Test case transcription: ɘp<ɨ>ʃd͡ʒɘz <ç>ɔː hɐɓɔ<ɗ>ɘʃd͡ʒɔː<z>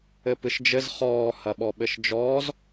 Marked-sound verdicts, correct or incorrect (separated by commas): correct, incorrect, incorrect, correct